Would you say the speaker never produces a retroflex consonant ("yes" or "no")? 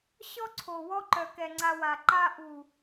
yes